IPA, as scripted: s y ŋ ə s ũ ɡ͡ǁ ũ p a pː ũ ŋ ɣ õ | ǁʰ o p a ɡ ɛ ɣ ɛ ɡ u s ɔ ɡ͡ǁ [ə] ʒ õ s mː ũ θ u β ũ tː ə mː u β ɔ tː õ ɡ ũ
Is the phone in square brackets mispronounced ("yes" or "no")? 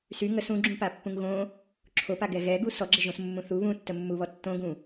no